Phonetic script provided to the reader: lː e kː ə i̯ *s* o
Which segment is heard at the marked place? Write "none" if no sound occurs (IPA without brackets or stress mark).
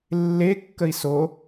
s